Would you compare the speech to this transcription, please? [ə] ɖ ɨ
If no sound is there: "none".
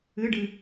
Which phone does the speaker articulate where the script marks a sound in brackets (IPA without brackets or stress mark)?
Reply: ɨ